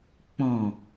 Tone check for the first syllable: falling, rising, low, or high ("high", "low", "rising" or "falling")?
low